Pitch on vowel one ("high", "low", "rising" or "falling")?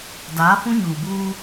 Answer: rising